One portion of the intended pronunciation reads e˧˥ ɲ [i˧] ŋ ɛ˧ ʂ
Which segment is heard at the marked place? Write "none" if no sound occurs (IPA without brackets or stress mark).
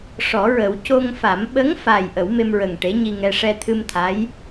i˧